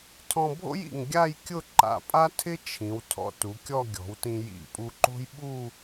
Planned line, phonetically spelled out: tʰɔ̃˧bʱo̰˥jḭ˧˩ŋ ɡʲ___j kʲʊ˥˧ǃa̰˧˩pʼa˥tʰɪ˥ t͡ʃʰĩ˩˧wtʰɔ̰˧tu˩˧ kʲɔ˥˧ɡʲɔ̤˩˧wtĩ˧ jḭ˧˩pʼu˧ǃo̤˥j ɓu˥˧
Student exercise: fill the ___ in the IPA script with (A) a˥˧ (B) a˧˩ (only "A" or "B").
A